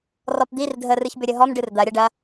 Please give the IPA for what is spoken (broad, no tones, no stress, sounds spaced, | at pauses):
r ɔ p d̪ i r dʱ ə r ɨ ç b ʏ ɾʲ ə ɦ ɔ m ɖ ɨ r d̪ ɐ ɾʲ ɐ ɖ ɐ